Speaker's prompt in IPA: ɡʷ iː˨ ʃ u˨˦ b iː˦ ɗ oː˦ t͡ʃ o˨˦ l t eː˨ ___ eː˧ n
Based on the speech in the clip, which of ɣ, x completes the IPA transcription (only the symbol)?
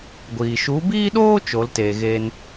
ɣ